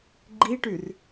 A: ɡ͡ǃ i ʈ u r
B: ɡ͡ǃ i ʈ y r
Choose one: B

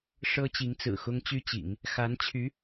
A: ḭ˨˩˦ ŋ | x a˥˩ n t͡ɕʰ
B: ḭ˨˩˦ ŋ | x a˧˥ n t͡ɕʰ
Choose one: B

